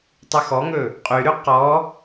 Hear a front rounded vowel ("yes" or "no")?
yes